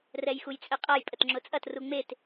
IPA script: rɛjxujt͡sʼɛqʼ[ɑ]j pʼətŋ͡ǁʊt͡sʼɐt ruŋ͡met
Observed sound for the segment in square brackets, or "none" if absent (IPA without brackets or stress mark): a